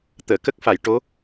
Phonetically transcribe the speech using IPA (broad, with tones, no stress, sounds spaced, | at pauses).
t̪ əː˨˩˨ k ə˦˥ k̚ f a˨˩˨ j ʈ o˧˥